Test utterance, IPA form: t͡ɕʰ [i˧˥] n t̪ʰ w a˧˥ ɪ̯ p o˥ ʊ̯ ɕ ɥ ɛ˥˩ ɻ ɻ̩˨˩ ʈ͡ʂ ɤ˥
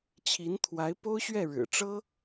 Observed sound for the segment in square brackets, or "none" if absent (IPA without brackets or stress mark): i˧˥